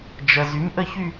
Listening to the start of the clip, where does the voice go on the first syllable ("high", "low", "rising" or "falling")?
low